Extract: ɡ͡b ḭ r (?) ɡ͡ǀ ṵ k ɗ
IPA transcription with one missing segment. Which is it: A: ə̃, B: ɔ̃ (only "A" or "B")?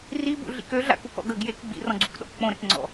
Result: B